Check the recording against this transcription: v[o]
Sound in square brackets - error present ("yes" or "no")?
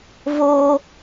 no